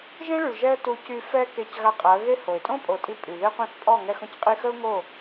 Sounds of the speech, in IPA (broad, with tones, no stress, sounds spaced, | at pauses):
ʒ ẽ˦ ɭ y˨ ɭ ʒ ɛ˦ ə̯ t u˧ c y˧ f ɛ˦ k e˧ c ɣ a˧ qʼ a˨˦ ə̯ ɣ e˦ h o˨ ɪ̯ tʼ õ˦ pʼ o˨ tʼ i˧ pʼ y˨ ð e˦ qʷ ẽ˦ θ pʼ ɔ˦˨ ŋ ɛ˧ x õ˨ c qʼ i˧ x ə˦ ʊ̯ ŋ o˦˨